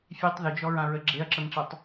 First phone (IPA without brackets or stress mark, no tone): fʲ